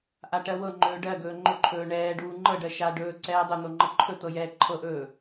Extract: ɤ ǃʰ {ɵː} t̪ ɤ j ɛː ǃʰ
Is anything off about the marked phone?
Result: yes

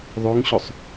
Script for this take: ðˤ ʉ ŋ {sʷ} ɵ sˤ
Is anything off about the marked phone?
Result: yes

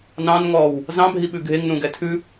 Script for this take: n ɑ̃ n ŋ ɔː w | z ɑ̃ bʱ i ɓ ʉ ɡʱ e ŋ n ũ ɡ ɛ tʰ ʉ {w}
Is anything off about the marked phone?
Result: yes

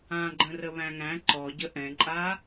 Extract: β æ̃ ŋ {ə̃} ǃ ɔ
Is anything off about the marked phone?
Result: yes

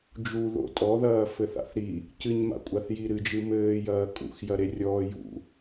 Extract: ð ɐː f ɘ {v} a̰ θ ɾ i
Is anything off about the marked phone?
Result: yes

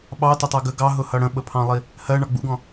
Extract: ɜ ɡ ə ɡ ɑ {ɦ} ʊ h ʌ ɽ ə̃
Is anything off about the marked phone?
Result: no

